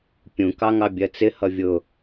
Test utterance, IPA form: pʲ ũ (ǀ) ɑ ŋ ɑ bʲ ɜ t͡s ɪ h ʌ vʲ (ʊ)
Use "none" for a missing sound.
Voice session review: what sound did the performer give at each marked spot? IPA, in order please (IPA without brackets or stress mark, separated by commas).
k, ʊ